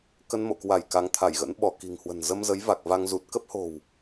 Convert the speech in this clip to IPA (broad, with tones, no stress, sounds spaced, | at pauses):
k ə˧ n m o̰˧˨ k w a˧˩ j k a˨˦ ŋ t̪ʰ a˧˩ j ɣ ə̰˧˥ n ɓ ɔ˧˩ k i̤˨˩ ŋ h w ə̤˨˩ n z ə˧ m z ə˨˦ j v a˨˩ k̚ v a˧ ŋ z u˨˩ t̚ k ə˦˥ p̚ h o̤˨˩ w